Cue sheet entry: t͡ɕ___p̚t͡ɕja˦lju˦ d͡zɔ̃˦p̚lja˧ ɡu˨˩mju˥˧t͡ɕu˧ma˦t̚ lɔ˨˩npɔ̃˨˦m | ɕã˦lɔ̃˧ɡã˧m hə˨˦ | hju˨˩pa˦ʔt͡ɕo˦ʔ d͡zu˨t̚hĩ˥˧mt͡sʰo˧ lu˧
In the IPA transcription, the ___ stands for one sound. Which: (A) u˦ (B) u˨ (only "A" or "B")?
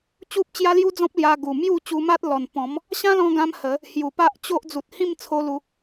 A